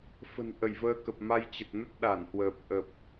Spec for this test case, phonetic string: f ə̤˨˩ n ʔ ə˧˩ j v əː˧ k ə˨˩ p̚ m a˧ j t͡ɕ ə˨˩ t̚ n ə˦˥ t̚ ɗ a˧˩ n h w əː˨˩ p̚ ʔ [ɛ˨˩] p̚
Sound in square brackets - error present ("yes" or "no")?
yes